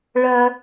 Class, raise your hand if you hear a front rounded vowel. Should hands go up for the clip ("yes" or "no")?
yes